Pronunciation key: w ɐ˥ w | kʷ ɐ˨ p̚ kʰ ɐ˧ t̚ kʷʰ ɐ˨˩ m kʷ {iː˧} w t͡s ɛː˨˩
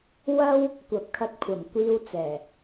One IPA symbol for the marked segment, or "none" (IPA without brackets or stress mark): iː˧